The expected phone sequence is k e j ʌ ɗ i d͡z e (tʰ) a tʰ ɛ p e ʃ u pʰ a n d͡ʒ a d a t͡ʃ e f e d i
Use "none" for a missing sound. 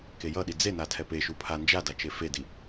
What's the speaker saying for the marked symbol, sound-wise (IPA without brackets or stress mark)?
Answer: n